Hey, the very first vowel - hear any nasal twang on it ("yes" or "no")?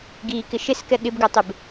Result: no